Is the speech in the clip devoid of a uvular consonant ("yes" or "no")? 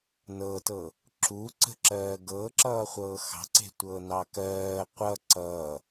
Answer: no